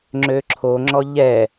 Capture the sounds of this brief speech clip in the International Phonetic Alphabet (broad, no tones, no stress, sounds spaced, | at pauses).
ŋ͡ǁ ø ǁʰ o ŋ͡ǁ ɔ ʎ ɛ